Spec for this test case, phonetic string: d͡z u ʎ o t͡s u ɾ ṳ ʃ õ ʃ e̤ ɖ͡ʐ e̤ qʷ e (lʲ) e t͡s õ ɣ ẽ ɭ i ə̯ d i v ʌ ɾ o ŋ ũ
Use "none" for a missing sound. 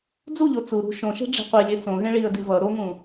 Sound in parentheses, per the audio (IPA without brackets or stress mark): lʲ